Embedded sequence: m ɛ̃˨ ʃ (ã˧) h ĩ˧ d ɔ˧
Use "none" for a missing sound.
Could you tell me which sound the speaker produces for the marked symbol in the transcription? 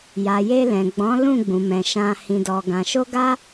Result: ã˧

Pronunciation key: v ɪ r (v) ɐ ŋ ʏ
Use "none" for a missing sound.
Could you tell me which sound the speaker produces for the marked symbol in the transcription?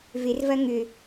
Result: v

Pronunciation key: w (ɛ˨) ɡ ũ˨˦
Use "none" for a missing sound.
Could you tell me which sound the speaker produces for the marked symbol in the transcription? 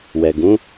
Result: ɛ˨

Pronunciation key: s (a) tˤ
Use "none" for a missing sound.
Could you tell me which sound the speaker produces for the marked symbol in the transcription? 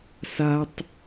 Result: a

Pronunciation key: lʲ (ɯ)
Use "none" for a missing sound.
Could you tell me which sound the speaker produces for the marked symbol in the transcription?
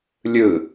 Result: ɯ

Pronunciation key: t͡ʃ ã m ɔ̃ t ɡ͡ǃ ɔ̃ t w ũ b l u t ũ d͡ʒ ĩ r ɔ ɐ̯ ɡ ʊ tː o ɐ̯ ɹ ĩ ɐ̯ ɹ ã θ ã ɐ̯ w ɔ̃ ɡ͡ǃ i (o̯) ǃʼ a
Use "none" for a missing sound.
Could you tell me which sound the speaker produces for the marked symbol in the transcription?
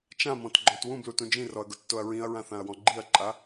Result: ɐ̯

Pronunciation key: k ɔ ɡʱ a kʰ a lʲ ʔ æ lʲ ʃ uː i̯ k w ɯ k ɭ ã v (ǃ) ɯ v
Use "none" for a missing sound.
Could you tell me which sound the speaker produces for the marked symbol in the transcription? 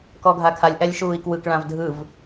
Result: dʱ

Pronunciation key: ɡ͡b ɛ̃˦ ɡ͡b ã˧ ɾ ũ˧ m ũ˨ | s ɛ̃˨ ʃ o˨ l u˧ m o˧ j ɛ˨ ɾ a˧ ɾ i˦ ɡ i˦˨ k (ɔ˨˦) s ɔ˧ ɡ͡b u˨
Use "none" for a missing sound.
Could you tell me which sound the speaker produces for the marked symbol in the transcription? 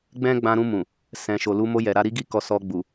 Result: ɔ˨˦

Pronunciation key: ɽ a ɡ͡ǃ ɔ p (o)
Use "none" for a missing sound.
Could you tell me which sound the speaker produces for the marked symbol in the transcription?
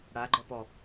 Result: ɔ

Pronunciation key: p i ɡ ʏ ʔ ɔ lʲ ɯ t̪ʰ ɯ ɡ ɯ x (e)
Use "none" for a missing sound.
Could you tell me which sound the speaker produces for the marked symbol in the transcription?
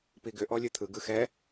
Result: ɛ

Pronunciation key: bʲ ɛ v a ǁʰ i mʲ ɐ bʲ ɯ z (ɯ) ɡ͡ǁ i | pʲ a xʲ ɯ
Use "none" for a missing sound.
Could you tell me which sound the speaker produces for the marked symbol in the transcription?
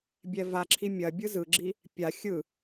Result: ɯ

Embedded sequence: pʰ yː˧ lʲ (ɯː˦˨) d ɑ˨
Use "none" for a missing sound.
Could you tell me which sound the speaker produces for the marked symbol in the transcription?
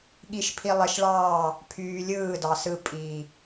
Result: ɯː˦˨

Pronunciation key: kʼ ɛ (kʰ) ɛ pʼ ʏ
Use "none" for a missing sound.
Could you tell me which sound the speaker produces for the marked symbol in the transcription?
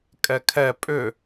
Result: kʰ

